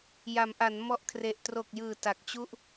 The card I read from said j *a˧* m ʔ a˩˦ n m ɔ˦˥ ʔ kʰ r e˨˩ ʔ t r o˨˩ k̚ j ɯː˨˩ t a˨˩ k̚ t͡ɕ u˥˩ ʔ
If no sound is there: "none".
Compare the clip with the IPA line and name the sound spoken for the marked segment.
a˩˦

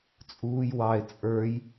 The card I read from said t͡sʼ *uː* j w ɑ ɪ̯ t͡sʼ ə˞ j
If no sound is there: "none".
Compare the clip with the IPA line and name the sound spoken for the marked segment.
uː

